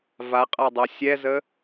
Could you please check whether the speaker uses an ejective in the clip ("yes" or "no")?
yes